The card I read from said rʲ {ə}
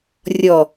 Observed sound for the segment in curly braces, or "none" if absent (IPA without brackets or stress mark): ɔ